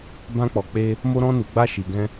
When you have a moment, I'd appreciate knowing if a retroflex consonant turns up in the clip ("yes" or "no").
no